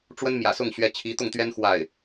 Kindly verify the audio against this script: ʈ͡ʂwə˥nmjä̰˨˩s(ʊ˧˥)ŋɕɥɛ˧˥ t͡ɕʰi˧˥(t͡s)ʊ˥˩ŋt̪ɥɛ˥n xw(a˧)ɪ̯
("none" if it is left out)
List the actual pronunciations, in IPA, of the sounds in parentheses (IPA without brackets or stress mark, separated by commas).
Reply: ʊ˥˩, t̪, a˥˩